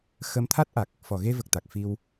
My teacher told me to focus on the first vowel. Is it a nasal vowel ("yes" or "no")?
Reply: no